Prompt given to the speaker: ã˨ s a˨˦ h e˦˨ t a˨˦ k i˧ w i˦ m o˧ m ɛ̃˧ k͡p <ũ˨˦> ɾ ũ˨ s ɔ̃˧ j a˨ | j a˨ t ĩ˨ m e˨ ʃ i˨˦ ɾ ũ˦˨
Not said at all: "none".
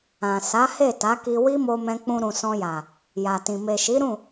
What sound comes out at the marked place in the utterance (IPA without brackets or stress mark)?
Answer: ũ˧